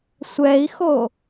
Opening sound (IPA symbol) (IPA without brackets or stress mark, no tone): sʷ